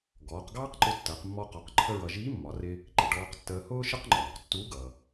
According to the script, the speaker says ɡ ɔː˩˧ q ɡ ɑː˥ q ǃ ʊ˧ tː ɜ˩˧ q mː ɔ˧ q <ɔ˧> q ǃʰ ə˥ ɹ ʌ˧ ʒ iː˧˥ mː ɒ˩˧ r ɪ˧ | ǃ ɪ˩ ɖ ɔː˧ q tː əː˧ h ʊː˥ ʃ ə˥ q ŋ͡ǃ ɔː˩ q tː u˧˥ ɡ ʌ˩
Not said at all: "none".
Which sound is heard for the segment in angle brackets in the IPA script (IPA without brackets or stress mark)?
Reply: ɔ˩˧